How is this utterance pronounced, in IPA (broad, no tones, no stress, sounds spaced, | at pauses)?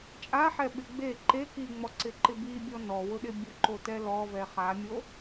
t͡ʃʼ a ħ ɛ ɓ ɪ ɡ͡b e ǃ e k i ŋ͡m ɔ ǀ ɪ ǃ ɪ b i bʲ ɔ n ɔ w ʊ ɗ ɪ bʲ ʊ ǃ o t ɛ l ɔ v ɛ χ a mʲ o